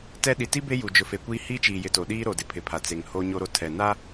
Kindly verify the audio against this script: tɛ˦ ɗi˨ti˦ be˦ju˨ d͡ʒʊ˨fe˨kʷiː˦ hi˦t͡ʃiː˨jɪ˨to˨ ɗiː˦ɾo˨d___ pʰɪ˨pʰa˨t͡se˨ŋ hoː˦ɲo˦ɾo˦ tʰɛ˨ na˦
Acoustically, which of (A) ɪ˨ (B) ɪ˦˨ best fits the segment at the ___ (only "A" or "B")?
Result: A